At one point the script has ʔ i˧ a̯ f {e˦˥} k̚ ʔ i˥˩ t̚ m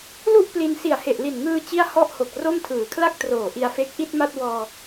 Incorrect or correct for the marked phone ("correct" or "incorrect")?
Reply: correct